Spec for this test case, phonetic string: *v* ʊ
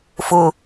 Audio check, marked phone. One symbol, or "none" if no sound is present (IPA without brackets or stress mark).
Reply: f